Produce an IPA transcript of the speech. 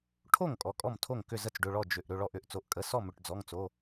ʈʰ o˥˩ ŋ kʼ ɔ˩˧˩ kʼ ɔ˥˩ m tʰ o˥˩ ŋ k ʏ˥˩ z ə˥˩ t͡s ɖ ʏ˩˧˩ ɭ ɔ˥˩ d͡ʒ ʏ˩˧˩ ʔ ɾ ʏ˩˧˩ ɭ ɔ˥˩ ʔ ʏ˩˧˩ ʔ t͡s o˩˧˩ ʔ kʼ ə˩˧˩ s ɔ˥˩ m ʏ˩˧˩ ʈ d͡z ɔ˩˧˩ ŋ t͡s o˩˧˩

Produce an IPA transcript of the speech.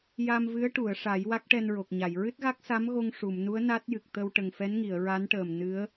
j a˧ m v ɨ˧˥ ə̯ ʈ u˨˩˨ ə̯ ʂ a˨˩˦ j w a˦˥ k̚ ʈ ɛ˧ n ɹ o˨˩ k̚ ɲ a˨˩˨ j ɹ ɨ˦˥ t̚ ɣ a˦˥ k̚ s a˧˥ m ɣ o˧ ŋ ʂ u˨˩˨ m n u˧˥ ə̯ n a˦˥ t̚ j ɨ˨˩ k̚ t̪ ə˧ w ʈ ə˨˩ ŋ f ɛ˧˥ n ŋ i˨˩˨ ə̯ ɹ a˧˥ n ʈ əː˨˩ m n ɨ˧˥ ə̯

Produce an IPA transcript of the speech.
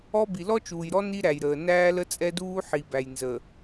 ɔ˦ b i˨ l ɔ˦ t͡ʃ uː˨ j ɾ ɔ˦ n i˦ ɾ æ˨ j ɾ əː˨ n æː˦ l ə˦ t͡sʼ ɛ˦ d uː˦ ħ i˨ b æ˨ j n z ə˨

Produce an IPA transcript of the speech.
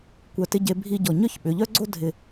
kʷ œ˧˩ t ɪ˥˧ ɟ e˧ bʱ i˥˧ ɟ ɔ˧˩ ɲ œ˥ ç ɓ ʏ˩˧ ʎ œ˥ ɡ͡ǀ o˥ dʱ ɪ˧˩

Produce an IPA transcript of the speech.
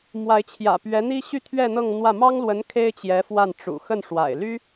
m w a˧˥ ɪ̯ t͡ɕʰ j ä̰˨˩ p ɥ ɛ˧˥ n̪ i˥ ɕ y˥˧ t̪ʰ ɥ ɛ˥˧ n̪ ɤ˥˧ ŋ n̪ w ä˥˩ m ɑ˥ ŋ l w ə˧˥ n kʰ e˥ ɪ̯ t͡ɕ j ɛ˧˥ f w a˥˩ n ʈ͡ʂ ṵ˨˩ x ə˥˩ n ʂ w a̰˨˩ ɪ̯ l y˥

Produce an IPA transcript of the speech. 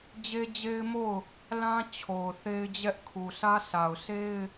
d͡ʑ e˦ d͡ʑ e˦ ɪ̯ m o˦˨ ʊ̯ | l ã˦ t͡ɕʰ o˨ ʊ̯ θ e˦ ɪ̯ d͡ʑ ɛ˦ ʔ kʰ u˨ s ä˦ sʰ a˨ ʊ̯ s e˦ ɪ̯

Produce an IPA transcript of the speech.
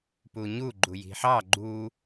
p u ɲ u ɡ͡ǃ u j i̤ ħ ɑ ɡ͡ǃ u

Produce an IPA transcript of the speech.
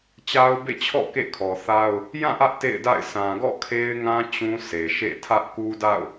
t͡ɕ a˦ ʊ̯ b ḛ˦˨ t͡ɕʰ ɔ̰˦˨ k ḛ˦˨ kʰ ɔ˨ θ a˦ ʊ̯ | j ã˦˨ ʔ ä˦ ʔ t ḛ˦˨ ɪ̯ d a̰˦˨ ɪ̯ s ã˨ ɡ ɔ̰˦˨ kʰ e˦ ɪ̯ ŋ ã˦ t͡ɕ ũ˦ s e˨ ʃ ḛ˦˨ tʰ ä˦ ʔ k u˦ d a̰˦˨ ʊ̯

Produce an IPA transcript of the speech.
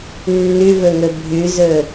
nː ʉ v ɵ ŋ ɵ bʱ ʉ z ɵ

